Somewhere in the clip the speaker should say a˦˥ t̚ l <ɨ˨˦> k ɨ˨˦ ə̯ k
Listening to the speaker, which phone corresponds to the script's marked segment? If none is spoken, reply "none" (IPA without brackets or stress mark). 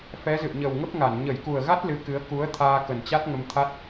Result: ɨ˨˦